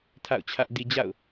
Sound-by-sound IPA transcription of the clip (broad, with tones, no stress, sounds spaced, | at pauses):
tʰ a̰˦˨ ʊ̯ t͡ɕʰ ä˦ ʔ d i˨ d͡ʑ a̰˦˨ ʊ̯